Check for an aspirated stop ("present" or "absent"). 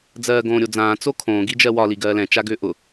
present